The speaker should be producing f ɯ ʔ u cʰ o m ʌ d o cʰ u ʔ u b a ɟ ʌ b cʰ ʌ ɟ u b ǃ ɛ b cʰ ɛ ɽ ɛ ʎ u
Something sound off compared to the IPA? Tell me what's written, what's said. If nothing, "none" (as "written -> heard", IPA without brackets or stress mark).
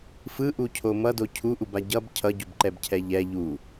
ɽ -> ʎ